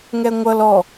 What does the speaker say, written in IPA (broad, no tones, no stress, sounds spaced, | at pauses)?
ŋ ɛ ŋʷ ʌ l ɔ